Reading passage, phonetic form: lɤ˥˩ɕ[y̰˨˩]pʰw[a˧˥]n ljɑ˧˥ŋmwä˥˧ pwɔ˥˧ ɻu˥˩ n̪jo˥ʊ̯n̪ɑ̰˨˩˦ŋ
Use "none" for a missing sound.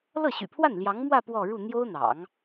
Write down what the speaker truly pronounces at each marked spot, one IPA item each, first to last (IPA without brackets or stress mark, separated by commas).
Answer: y̰˨˩, a˥˩